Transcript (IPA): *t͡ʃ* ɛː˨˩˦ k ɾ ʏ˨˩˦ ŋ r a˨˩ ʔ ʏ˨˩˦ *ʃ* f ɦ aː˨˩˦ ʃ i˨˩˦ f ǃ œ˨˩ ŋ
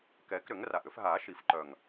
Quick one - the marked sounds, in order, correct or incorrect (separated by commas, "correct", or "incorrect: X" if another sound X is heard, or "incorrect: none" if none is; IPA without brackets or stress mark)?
incorrect: k, incorrect: none